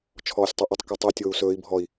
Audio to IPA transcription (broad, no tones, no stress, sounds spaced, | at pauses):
t͡ʃʰ ɔː sʲ tˤ ɵ ʔ ʊ tˤ k o tˤ u tʲ oː u̯ s ɵː i̯ bʱ ɔ i̯